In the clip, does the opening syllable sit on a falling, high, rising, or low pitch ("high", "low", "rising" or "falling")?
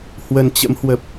low